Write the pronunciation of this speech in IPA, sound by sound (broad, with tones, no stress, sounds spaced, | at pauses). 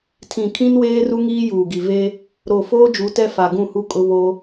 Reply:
tʰ ĩ˨ kʰ ĩ˦ n w eː˦ r u˦ ŋ iː˦ j uː˨ ɡ i˨ v e˦ | ɾ o˨ f oː˦ d͡ʒ u˨˦ t ɛ˦ f a˨ ɡ ũ˦˨ h u˦ kʼ ʊ˦ β o˦